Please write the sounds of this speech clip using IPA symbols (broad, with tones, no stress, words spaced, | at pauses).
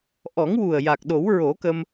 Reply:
ʔɔ˨˩˦ŋwu˨˩ə̯ ja˨˩k̚ ɗo˨˩˦wɹo˨˩˦kə˧m